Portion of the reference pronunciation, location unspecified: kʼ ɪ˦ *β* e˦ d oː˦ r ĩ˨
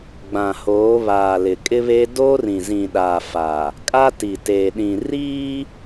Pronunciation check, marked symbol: correct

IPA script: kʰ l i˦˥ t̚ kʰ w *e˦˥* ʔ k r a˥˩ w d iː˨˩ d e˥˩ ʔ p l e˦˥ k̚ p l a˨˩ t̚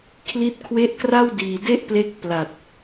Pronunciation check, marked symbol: correct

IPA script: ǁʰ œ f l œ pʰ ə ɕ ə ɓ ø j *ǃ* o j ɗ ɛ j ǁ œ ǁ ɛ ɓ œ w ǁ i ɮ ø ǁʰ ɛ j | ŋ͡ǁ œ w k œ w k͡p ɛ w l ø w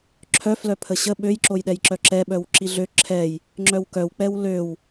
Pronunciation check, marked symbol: incorrect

